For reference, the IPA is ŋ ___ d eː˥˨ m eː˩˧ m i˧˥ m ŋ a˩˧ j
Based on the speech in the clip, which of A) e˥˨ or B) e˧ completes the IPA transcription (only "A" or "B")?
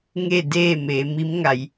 A